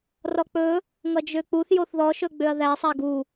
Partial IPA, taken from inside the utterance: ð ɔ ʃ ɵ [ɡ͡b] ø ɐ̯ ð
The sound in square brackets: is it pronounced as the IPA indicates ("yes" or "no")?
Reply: yes